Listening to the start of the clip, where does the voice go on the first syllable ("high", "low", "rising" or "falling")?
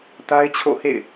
high